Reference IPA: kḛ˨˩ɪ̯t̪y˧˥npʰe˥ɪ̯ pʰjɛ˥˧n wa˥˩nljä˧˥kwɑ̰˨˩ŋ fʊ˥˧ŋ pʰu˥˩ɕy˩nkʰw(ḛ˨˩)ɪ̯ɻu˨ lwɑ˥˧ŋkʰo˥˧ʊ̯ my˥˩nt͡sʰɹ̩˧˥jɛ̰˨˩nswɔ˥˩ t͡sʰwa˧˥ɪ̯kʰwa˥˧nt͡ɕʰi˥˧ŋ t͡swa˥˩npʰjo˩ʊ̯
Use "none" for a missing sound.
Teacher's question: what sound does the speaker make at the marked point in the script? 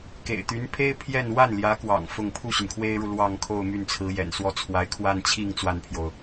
e˥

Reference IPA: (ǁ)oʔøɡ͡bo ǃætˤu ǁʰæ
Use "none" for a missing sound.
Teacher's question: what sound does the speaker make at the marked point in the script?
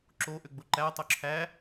ǁ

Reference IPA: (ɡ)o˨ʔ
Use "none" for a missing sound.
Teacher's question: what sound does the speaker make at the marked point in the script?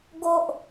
ɡ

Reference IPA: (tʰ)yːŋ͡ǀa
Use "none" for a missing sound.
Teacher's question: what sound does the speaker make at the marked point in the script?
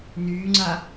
n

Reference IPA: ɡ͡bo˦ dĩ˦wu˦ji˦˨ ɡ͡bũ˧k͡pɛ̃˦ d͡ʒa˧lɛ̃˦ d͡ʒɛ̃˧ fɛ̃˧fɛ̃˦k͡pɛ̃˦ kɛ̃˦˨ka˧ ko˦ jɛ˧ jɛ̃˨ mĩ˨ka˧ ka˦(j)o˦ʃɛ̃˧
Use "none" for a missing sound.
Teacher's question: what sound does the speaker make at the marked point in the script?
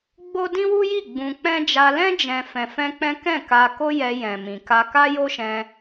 j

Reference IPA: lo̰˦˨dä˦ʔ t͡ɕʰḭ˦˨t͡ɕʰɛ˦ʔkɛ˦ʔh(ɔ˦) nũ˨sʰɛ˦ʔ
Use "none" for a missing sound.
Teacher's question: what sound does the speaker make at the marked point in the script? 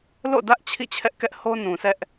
o˦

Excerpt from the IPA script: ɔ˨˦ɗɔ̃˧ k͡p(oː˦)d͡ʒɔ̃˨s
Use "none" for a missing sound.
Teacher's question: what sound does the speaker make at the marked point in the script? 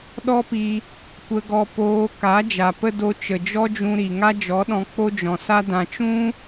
o˦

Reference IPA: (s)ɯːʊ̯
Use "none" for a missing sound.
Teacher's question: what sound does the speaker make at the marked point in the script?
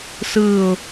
s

